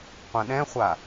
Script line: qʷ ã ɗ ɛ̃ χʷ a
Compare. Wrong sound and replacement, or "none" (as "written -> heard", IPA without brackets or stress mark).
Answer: none